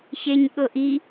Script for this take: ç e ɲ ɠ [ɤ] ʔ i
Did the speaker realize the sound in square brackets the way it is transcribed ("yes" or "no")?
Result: yes